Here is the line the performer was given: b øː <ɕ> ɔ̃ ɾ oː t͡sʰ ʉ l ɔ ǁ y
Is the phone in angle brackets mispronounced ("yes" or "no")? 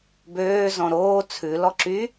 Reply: yes